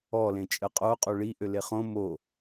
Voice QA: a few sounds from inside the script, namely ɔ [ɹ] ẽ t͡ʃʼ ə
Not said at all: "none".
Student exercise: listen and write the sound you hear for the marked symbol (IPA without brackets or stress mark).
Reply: l